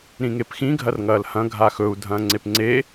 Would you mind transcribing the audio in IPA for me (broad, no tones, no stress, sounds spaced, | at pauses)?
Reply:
ɾ ĩ ŋ e p x ĩ ɡʱ ɐ r ŋ ɐː l h ɐ̃ ɡʱ a x ɵ u̯ dʱ ɐ̃ː ŋ͡ǀ e p ŋ͡ǀ e